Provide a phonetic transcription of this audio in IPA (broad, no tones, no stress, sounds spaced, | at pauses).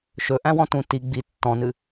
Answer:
ʃ ɵ ʔ æ̃ w ɔ̃ t ũ t i ɡ͡b i tː ɔ̃ n ɨ